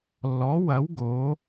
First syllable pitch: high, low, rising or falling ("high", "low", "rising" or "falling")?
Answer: rising